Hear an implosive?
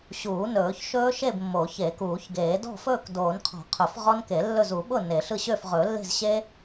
yes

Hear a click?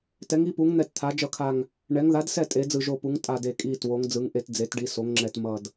yes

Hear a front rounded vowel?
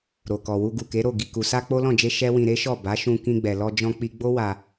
no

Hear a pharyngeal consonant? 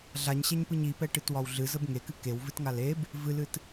no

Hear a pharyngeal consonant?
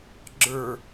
no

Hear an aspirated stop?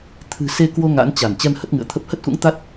yes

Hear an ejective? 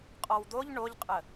yes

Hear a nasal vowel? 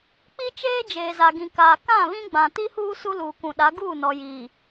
yes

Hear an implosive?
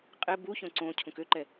no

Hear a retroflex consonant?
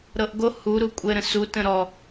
no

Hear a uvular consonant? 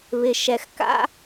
no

